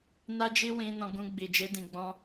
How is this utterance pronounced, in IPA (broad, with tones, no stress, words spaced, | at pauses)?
na˦d͡ʒi˦ wĩ˧nɔ̃˧ɡũ˧ɡ͡bi˨ d͡ʒe˧dĩ˨ɡ͡bɔ̃˧